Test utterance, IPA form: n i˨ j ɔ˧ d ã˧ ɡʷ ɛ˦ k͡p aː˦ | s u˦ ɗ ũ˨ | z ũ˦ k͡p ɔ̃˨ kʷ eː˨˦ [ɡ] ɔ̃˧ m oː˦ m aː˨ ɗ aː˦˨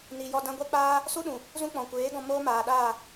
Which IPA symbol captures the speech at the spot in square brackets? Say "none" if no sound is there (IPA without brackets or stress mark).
ɡ